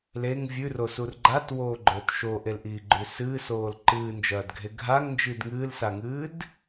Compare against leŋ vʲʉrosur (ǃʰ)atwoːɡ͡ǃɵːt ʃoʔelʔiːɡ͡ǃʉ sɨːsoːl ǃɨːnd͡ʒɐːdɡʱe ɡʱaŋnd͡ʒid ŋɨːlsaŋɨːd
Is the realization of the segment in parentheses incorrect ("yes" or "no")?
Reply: yes